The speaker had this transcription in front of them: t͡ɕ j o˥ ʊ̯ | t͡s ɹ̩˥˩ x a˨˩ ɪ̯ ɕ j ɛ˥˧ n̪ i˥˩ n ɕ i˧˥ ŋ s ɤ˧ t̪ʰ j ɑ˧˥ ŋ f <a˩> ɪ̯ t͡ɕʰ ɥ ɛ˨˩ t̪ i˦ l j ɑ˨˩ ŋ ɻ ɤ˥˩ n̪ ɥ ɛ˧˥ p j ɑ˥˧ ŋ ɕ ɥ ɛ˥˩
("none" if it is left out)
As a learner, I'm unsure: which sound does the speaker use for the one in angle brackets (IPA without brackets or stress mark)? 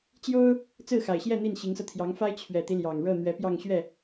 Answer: a˥